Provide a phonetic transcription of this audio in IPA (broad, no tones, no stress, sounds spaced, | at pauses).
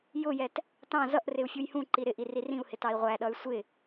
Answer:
j ʊ j ɛ t | t ɑ̃ z ʌ ʔ r ɪ u̯ fʲ u j h ũ ǃ i ɾ ɪ ʔ i r i r ĩ u̯ h ɪ t ɑ i̯ ʁʷ æ ɗ ʌ y̯ sʷ ɪ